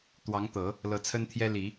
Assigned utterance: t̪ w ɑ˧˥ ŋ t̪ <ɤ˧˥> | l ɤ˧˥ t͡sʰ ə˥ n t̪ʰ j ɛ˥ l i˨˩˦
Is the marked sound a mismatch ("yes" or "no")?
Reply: yes